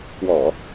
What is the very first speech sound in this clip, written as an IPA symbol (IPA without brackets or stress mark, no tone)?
k